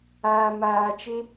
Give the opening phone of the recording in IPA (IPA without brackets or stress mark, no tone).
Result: aː